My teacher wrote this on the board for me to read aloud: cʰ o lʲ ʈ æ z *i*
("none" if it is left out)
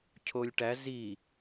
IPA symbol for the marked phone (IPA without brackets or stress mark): i